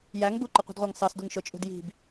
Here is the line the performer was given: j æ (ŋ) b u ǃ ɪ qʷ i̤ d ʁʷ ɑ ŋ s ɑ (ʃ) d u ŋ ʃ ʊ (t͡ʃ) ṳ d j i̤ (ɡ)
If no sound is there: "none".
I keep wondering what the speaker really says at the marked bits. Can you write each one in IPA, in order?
ŋ, s, t͡ʃʼ, b

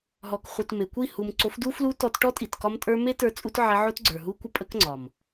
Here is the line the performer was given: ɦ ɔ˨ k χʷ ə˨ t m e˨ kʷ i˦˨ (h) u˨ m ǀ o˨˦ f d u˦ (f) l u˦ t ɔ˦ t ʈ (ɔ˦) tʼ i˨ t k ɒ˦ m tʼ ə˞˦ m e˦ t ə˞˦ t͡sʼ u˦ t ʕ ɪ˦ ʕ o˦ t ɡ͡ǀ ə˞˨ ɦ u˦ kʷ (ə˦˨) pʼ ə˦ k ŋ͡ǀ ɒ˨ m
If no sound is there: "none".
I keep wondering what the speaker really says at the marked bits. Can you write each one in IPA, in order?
h, f, ɔ˦, ə˦

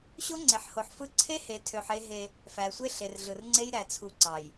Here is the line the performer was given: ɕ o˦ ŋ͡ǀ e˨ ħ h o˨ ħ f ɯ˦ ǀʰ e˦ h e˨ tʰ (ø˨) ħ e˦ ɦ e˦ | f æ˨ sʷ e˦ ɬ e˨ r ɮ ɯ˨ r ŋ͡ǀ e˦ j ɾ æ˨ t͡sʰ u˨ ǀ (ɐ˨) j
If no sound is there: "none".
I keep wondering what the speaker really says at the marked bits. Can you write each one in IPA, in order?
ø˨, ɑ˨

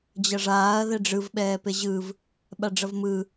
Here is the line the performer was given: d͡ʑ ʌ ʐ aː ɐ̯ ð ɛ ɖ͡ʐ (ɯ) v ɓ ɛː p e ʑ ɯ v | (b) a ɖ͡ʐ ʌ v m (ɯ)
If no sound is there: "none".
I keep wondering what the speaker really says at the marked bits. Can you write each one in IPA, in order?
ɯ, ɓ, ɯ

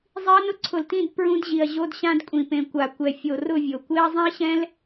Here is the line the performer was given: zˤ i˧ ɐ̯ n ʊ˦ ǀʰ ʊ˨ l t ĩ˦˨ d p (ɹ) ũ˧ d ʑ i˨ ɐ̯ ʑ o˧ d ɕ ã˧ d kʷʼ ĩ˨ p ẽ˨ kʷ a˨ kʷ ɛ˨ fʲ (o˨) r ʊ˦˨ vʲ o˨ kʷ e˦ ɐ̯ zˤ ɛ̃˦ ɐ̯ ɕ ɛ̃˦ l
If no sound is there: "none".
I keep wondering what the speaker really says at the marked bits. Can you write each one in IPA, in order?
ɹ, o˨

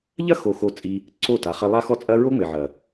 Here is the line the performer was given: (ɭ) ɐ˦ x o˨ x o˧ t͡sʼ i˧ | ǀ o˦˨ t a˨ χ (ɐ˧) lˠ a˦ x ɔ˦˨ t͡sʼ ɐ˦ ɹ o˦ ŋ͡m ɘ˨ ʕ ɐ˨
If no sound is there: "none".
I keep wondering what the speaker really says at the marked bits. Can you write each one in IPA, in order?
ʎ, ɐ˧

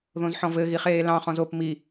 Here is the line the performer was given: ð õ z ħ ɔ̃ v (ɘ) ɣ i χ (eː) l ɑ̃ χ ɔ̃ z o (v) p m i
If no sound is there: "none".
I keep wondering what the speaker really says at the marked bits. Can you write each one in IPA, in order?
ɘ, eː, none

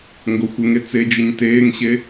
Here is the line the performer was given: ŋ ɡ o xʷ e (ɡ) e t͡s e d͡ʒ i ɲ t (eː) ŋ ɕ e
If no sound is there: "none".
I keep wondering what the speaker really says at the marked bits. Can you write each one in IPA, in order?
ŋ, eː

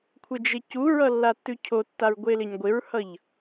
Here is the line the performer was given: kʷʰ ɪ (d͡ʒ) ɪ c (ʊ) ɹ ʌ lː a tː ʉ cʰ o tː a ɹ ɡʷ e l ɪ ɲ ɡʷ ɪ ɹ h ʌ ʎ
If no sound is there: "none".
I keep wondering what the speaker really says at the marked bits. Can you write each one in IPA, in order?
d͡ʒ, u

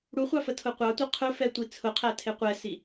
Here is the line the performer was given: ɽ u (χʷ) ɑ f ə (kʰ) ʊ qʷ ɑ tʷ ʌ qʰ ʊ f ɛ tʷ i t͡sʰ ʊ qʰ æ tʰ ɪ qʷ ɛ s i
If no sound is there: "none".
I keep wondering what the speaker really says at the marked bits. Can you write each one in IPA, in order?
χʷ, tʰ

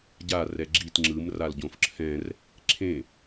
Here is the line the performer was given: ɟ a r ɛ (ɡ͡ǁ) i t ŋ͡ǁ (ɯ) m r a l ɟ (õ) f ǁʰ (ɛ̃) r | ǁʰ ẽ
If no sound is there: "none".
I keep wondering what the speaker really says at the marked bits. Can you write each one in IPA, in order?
ɡ͡ǁ, ɯ, õ, ɛ̃

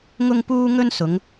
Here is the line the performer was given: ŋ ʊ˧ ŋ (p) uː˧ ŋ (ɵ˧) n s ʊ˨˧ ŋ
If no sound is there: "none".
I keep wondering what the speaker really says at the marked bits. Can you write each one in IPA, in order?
p, ɵ˧

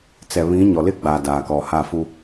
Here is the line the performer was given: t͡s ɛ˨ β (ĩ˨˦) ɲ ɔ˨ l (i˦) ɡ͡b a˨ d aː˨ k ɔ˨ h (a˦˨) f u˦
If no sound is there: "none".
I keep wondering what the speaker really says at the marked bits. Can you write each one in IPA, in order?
ĩ˨˦, ɪ˦, a˦˨

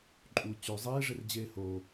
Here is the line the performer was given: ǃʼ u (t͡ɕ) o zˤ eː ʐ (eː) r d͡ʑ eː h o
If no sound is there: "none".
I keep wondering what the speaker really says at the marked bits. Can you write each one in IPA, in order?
t͡ɕ, e

